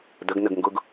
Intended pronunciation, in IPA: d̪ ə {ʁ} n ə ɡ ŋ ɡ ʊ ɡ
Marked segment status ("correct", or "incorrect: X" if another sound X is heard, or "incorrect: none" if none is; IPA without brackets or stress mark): incorrect: ɡ